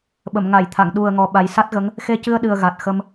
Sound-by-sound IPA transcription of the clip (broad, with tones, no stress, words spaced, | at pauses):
ɓə˨˩˨mŋa˨˩˨jt̪ʰa˨˩˨ŋ ɗu˨˩ə̯ŋɔ˨˩ ɓa˨˩jsa˦˥t̚ɣə˧˥ŋ | xe˧cɨ˧ə̯ɗɨ˨˩ə̯ ɣa˨˩t̚xə˧m